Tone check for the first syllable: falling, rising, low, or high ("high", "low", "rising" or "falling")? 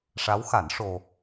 rising